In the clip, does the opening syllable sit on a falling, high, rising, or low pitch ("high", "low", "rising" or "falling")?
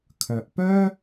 low